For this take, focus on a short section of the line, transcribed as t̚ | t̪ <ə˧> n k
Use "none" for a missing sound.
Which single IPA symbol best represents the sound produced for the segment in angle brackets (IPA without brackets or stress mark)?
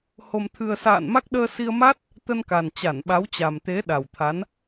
ə˧